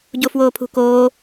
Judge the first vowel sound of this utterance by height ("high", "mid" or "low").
mid